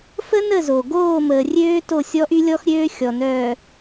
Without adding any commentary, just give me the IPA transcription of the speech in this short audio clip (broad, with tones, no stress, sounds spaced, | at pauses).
f ə˦ n ə˦˨ z o˨ ɡ oː˦˨ m əː˨ rʲ øː˦ t o˦˨ sʲ ɔ˦ ʔ y˦ lʲ ɔ˦ x ɾʲ øː˦ xʲ ɔ˨ n œː˨